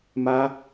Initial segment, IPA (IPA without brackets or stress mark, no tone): m